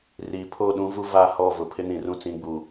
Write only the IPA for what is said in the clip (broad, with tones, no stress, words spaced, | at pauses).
riː˨pʰoː˦˨ ɗũ˦vu˦va˦˨hɔ˦˨ vʊ˨pʰɪ˦ nĩ˨rũ˦ t͡sĩ˨˦ɡ͡bu˨